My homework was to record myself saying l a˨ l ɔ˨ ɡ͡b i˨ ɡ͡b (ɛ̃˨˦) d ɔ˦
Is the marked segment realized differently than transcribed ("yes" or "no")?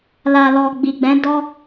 no